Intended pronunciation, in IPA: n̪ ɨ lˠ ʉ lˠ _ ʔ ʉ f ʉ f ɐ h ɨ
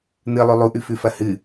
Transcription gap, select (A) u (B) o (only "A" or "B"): A